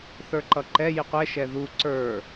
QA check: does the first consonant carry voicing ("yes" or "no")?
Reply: no